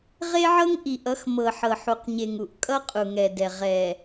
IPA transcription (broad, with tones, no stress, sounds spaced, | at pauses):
ʁ e˦ ʕ ɤ˦ ŋ ʔ i˨ ʔ ʌ˨˦ x m ɤ˨ ħ ɤ˨ ħ u˨ q ɲ e˨ ŋ u˨ ʔ kʼ ʌ˦ qʼ u˨ ŋ ɛ˨ d ɛ˨ ʁ ɛ˨